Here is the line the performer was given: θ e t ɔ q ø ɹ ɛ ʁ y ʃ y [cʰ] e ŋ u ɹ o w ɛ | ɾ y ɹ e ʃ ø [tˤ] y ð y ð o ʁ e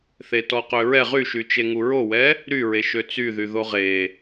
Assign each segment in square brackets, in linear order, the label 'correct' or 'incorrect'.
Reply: incorrect, incorrect

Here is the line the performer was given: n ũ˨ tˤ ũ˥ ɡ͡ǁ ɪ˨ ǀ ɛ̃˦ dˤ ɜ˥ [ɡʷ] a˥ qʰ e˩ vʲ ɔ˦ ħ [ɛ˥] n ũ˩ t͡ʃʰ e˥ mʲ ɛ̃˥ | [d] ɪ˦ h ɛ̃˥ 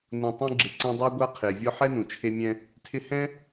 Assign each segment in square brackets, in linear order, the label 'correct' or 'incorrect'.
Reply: correct, correct, incorrect

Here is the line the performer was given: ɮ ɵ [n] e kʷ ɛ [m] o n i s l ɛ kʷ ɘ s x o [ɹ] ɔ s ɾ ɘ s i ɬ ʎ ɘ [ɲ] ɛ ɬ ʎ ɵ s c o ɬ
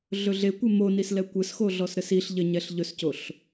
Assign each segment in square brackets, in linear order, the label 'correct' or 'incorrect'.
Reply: incorrect, correct, incorrect, correct

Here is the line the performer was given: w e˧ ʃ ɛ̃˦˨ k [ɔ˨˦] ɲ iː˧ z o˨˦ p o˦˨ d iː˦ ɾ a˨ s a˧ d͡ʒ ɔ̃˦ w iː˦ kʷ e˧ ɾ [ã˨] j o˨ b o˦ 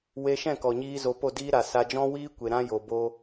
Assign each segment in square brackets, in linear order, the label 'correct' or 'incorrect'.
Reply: incorrect, incorrect

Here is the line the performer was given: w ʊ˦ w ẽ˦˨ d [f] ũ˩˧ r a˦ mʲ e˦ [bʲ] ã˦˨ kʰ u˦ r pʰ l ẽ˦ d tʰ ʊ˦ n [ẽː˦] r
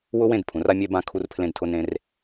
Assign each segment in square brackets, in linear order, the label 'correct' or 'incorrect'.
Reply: incorrect, incorrect, incorrect

